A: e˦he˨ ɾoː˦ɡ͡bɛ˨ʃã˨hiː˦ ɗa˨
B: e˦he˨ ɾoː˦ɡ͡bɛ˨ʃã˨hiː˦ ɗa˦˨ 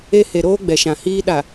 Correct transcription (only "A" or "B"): A